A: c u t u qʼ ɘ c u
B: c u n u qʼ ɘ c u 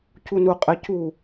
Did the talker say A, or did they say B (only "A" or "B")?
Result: B